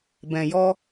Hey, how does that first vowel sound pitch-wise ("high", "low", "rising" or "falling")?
low